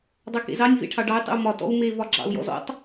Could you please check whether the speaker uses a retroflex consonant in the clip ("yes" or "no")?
yes